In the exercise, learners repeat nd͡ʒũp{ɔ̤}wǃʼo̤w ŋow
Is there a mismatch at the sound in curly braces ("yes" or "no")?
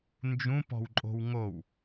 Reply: no